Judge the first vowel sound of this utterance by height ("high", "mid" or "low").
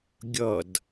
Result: mid